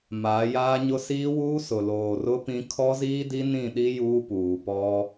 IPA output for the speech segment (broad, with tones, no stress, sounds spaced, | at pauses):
m aː˨˦ j aː˦ ɲ ʊ˦ s iː˦ w uː˦ s ʊ˨ l oː˨ r ʊ˦ p ĩ˦ kʰ ɔ˦ z iː˦ d i˦ n ĩ˦˨ ɗ i˦ j uː˦ p uː˨ p ɔ˦